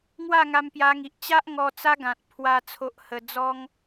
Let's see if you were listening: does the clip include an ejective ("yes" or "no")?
no